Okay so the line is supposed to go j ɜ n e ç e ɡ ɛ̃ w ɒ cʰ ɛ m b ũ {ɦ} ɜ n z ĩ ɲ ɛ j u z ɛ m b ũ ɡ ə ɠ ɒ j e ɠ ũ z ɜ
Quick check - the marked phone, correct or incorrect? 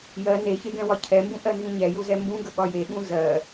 incorrect